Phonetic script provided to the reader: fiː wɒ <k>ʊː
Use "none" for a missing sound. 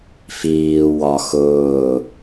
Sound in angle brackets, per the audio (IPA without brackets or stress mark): x